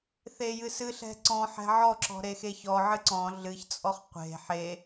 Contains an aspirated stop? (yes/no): no